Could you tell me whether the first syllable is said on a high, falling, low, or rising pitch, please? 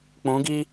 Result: rising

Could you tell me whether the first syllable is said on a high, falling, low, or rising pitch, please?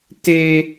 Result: high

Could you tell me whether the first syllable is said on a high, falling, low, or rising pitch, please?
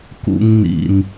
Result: high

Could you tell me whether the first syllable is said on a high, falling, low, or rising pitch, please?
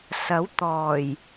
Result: rising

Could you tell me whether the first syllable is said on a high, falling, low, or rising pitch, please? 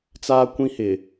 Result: high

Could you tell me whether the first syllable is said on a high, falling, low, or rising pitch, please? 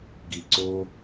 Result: low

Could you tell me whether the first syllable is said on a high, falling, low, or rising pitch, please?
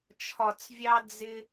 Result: low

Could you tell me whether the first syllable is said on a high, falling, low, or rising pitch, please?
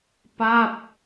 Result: falling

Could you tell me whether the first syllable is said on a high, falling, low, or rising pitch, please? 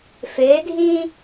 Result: rising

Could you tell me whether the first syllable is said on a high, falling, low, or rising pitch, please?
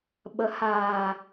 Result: rising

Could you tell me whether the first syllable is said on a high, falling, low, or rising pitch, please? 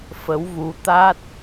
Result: rising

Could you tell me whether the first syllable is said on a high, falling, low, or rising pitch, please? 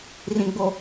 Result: low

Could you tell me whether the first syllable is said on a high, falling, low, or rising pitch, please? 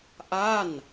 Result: falling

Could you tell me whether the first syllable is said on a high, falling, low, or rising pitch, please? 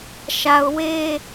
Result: low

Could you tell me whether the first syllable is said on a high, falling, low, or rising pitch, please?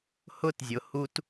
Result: high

